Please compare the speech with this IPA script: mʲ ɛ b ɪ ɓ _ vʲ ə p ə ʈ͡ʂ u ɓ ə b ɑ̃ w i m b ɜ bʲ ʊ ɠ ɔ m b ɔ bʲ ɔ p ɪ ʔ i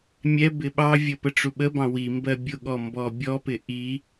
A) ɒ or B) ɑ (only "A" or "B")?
B